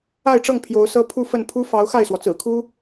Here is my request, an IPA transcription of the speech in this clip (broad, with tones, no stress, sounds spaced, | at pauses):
a˥˧ ɪ̯ ʈ͡ʂ ɤ˥˩ ŋ pʰ j o˧˥ ʊ̯ s ɤ˥ pʰ u˥˧ f ə˥˩ n pʰ u˥ f ɑ˧˥ ʊ̯ x a˥˩ ɪ̯ s w ɔ˩ t͡s ɹ̩˨˩ kʰ u˥